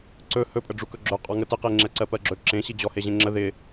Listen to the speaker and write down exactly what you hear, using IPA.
ǀɵ hɵpʼəɖ͡ʐu kɵɡ͡ǁɵ qʼɔŋətɪqe ŋ͡ǁɛǀɜpɜɡ͡ǁɵ ǁẽɕi d͡ʑɔheʑẽŋ͡ǁə ðɪ

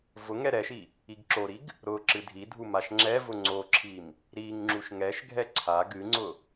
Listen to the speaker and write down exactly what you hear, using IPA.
vʊ ŋɛɾɛʃi | iɡǁoɾiɡ | ɾʊ ǁɨdʱidʱu maʃŋ͡ǁɛvʊ ŋ͡ǀoǁʰim | ɾiŋ ŋ͡ǁuʃŋɛʃɡʱɛ ǀʰa ɡɨŋ͡ǀʊ

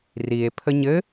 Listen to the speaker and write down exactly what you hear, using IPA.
rie̯ pʰəɲɘ

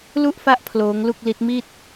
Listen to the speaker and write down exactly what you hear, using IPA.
lu˥˩ʔfa˦˥ʔ pʰloː˦˥ŋlu˥˩k̚li˦˥t̚ mi˥˩t̚

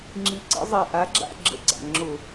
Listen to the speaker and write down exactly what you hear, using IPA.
ŋ͡ǁi˨˦ǀə̰˨˦zˤɛ˨˩ ʔa˨˦ɡ͡ǁa̰˦˨ ɡ͡ǁə̰˦ɡ͡ǀa̰˨˩ ŋ͡ǁʊ˧˩˧

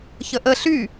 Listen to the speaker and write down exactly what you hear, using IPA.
çəʔə ɬy

